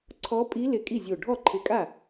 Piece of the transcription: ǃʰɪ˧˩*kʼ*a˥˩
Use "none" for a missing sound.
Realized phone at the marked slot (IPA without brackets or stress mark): kʼ